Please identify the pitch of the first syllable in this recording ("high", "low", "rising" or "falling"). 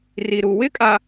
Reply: low